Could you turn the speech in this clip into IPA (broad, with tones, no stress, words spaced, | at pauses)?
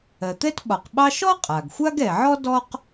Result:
ɜ˩t̪ɛ˥tɓɒ˩qɓɑ˥ ʃɔ˥qʼa˩ɡ xʷa˥ɡɛ˩ʕɔ˥ dɔ˥q